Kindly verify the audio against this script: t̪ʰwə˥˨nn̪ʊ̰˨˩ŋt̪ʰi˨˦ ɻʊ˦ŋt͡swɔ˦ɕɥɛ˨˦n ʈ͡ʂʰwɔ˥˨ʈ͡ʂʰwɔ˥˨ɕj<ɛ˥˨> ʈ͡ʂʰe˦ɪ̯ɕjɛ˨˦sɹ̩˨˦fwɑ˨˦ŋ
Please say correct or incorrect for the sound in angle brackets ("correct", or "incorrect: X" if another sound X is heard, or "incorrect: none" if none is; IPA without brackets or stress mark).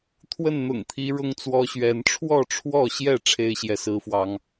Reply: correct